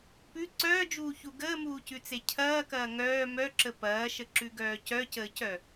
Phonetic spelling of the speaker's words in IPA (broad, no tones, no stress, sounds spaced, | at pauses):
p ʉ ǀ œː d͡ʒ uː ç u ɡ əː m uː c ʉ t͡s e cʰ ɐː k ɐː ŋ œː m œ ǁ ə p ɐː ʃ ə ǁ ʉ ɡ œː c œ c əː c œ